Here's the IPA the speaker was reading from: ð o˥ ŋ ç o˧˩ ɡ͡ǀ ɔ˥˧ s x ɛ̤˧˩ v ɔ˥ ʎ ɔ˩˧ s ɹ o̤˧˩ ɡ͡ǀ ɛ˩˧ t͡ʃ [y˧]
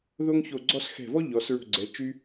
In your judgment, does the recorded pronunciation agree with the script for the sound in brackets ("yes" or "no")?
yes